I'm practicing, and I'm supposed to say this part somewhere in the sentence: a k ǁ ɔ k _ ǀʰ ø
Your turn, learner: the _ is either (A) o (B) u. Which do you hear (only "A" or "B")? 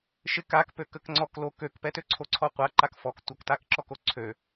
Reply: A